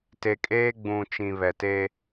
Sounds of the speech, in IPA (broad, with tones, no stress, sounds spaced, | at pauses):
t e˨ kʼ eː˦ ɡ͡b ũ˨ t͡ʃ ĩ˨ β ɛ˨ t e˦